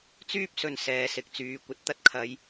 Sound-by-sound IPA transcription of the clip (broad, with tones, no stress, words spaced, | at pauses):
t͡syː˥p̚sɵ˨n sɛː˨˧sɪ˨k̚t͡syː˨˧ kʷɐ˧t̚t̪ɐ˧t̚ kʰɐ˨˧j